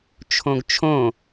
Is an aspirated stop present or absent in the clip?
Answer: present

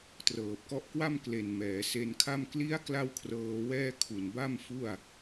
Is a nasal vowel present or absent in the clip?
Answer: absent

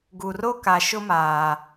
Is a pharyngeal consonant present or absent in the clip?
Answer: absent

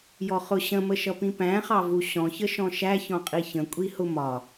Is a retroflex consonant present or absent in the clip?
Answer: absent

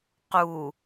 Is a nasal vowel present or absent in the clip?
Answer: absent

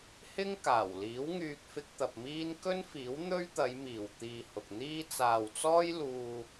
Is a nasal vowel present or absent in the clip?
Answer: absent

